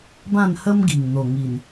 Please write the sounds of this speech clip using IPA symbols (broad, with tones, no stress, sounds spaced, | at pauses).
b ã˥˧ n h ə˦ m ɡ i˨˩ ŋ n̪ o˨˩ ŋ i˨˩ n